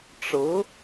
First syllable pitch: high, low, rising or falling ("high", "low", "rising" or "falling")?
rising